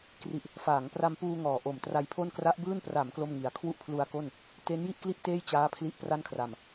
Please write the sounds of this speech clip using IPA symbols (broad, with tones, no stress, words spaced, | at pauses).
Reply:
kri˨˩ʔ | faː˩˦ŋpra˧mpuː˧ ŋɔː˨˩ʔo˨˩mtra˧jpʰo˥˩n kra˦˥ʔbɯː˥˩n pra˩˦m klo˥˩mŋi˨˩a̯ kʰwu˥˩ʔpʰlu˧a̯ko˥˩n | te˦˥n ji˥˩ʔkli˥˩ʔ teː˥˩j t͡ɕaː˦˥ pʰli˦˥ʔpra˥˩nkʰra˨˩m